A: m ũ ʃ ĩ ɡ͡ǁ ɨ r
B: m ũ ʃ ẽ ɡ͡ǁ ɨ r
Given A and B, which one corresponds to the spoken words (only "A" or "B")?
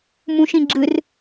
A